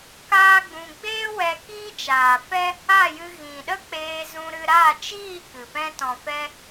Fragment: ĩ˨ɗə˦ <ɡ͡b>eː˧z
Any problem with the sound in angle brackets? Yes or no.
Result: yes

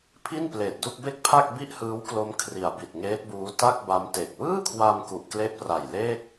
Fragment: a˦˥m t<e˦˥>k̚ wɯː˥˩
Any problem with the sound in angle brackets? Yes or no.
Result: yes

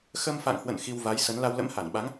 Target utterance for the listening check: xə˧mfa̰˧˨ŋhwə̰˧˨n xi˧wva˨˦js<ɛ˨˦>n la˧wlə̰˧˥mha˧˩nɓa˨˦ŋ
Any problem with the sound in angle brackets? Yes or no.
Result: yes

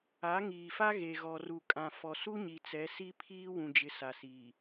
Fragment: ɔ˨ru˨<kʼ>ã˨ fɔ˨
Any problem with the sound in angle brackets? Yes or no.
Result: no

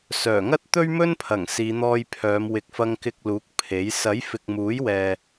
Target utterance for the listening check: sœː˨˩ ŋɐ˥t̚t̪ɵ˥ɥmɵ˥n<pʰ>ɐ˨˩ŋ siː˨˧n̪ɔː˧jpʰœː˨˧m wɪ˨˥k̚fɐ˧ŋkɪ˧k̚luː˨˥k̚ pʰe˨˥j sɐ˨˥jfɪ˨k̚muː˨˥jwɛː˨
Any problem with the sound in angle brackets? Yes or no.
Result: no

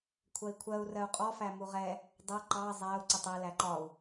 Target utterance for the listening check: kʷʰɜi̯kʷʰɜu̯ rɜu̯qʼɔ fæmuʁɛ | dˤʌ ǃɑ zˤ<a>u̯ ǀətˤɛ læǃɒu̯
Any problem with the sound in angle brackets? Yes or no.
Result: yes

